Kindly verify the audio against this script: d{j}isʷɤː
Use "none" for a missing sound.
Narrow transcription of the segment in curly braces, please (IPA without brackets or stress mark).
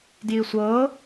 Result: j